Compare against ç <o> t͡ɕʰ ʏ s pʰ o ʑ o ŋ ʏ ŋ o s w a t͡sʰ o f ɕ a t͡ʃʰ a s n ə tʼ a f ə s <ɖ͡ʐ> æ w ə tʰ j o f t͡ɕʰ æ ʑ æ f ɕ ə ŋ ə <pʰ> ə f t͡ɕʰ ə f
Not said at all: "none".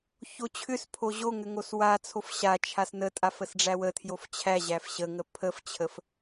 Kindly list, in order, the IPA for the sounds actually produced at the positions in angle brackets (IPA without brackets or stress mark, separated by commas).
o, ɖ͡ʐ, pʰ